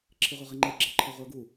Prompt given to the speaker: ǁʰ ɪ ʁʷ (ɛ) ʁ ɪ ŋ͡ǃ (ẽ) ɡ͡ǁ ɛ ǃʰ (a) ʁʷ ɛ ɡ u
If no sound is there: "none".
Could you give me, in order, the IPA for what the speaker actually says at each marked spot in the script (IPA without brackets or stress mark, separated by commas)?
ə, e, ʌ